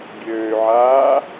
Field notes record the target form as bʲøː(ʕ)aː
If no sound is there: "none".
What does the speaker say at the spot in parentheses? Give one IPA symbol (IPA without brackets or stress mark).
ʕ